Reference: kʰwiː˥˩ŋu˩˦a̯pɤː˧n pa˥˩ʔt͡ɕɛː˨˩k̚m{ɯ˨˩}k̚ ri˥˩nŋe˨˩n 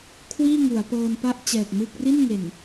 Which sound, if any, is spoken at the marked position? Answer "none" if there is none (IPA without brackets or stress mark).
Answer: ɯ˥˩